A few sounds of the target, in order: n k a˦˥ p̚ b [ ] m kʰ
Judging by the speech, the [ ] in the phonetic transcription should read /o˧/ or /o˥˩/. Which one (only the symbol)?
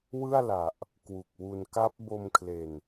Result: o˧